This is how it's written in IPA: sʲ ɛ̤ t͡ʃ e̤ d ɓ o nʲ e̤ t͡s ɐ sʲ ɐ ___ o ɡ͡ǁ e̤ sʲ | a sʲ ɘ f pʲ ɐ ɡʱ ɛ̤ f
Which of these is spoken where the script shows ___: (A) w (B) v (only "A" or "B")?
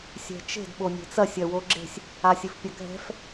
A